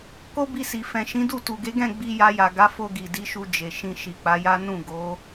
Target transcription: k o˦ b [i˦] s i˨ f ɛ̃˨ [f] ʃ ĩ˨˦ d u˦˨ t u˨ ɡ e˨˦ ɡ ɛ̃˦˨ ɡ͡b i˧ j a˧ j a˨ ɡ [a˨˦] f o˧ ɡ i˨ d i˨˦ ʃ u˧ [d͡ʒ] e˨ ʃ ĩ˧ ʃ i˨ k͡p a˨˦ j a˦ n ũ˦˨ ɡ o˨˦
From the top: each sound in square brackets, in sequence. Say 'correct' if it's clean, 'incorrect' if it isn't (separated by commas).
incorrect, incorrect, correct, correct